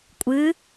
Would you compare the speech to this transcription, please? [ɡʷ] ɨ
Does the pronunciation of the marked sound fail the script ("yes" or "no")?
yes